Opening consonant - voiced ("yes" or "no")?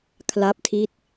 no